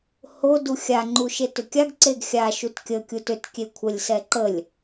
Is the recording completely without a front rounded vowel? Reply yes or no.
no